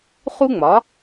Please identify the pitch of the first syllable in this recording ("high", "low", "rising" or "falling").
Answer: high